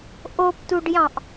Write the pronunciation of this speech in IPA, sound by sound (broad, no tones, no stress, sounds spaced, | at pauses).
ʔ o p t u ɖ j ɑ̃ ʔ